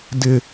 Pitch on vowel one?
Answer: high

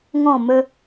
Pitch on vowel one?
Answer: falling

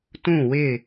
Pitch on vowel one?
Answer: falling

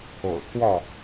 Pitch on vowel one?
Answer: low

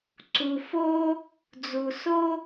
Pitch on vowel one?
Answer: low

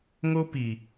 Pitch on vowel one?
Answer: high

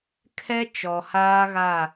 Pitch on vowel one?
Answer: high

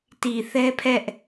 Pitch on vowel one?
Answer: low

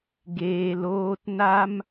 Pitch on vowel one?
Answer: low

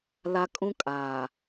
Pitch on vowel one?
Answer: high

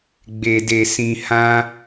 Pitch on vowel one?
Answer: low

